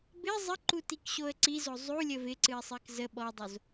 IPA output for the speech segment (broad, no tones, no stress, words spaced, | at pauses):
bɪ zˤəǃutikɕoə̯ ǀizo zˤulʲə vɪǀɨɪ̯sˤɨk zə ɓɔdˤoz